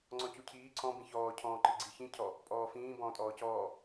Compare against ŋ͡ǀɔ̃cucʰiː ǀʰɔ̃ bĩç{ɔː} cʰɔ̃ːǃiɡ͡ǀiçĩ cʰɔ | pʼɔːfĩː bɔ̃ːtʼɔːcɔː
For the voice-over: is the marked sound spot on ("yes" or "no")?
yes